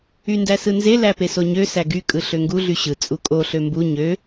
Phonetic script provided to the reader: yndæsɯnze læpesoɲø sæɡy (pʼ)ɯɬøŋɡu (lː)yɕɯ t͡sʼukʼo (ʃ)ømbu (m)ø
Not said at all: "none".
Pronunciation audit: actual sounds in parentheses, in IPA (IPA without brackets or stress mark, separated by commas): kʼ, ɮ, ɬ, ɲ